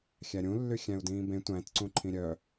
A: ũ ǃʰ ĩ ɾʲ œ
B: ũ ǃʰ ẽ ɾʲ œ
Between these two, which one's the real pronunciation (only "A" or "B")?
A